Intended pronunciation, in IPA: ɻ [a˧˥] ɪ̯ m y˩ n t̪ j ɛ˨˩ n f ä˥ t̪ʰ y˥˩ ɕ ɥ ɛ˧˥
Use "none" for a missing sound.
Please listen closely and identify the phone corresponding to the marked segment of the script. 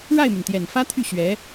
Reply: a˥˩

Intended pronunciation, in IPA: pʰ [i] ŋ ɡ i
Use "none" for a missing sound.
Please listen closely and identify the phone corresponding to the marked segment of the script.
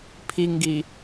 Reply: i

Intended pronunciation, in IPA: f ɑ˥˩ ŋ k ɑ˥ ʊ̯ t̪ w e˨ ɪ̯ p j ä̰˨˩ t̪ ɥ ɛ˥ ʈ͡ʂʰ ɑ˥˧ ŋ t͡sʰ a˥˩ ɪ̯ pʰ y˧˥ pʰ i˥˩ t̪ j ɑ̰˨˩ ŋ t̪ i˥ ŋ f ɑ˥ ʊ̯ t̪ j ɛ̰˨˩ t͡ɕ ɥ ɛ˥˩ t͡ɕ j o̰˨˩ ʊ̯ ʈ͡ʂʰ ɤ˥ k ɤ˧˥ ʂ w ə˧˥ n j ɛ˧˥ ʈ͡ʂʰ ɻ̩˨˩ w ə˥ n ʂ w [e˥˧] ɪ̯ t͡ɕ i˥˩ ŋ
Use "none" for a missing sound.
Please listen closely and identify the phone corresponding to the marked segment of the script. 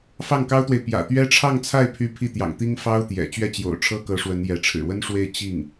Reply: e˥˧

